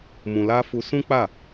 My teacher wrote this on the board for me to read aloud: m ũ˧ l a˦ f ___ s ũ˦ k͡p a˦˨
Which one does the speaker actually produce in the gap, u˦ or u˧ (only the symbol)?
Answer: u˧